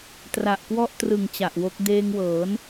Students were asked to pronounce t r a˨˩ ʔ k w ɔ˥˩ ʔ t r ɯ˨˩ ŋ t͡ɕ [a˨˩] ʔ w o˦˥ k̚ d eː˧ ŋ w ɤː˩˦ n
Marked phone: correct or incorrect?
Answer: correct